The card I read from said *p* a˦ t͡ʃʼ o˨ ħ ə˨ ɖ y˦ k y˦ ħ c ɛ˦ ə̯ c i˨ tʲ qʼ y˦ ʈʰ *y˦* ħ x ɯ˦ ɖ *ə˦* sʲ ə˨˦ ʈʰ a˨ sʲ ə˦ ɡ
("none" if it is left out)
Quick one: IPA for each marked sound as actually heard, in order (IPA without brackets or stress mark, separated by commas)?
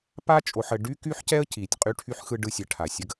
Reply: p, y˦, ɯ˦